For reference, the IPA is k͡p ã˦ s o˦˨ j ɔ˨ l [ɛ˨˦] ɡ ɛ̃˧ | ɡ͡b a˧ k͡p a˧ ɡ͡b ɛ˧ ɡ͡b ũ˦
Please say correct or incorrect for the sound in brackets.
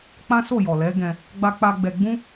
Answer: correct